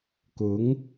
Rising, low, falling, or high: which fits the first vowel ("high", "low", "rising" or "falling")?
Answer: rising